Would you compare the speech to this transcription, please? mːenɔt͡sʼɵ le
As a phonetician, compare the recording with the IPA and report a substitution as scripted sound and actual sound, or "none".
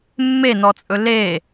none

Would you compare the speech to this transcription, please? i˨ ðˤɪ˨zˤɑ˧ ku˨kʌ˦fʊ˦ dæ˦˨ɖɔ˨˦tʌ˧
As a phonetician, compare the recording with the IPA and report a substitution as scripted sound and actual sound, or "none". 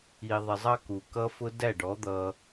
t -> d̪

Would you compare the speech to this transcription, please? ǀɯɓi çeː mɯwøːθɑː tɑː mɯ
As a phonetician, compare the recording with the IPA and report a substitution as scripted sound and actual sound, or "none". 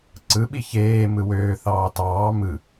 none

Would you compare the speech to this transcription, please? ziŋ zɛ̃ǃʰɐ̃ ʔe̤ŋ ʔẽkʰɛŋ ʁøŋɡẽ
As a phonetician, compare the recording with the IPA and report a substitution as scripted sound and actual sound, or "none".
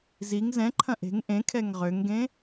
none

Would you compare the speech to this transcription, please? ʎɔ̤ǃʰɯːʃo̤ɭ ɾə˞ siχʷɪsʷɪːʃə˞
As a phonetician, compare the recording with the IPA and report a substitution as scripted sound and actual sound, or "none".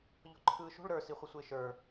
none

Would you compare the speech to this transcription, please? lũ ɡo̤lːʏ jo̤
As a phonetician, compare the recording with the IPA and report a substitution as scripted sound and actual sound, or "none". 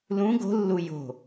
ʏ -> u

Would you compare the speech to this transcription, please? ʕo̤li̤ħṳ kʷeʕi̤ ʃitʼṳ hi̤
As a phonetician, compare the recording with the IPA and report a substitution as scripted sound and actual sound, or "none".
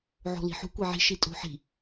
h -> ħ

